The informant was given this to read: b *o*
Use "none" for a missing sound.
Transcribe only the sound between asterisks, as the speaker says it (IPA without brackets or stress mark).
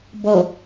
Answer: ɔ